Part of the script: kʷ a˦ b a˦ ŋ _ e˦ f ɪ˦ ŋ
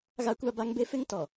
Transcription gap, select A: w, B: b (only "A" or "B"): B